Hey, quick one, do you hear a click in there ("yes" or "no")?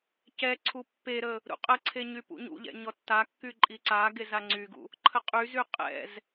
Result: yes